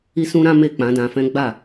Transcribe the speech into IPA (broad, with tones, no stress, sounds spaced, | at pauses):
i˦ s ũ˦ ɾ ã˦ m e˦˨ k͡p ã˨˦ d ã˧ f ɛ̃˦ ɡ͡b a˦˨